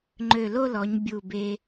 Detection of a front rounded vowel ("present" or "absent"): present